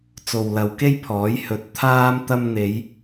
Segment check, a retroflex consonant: absent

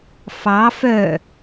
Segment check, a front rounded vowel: present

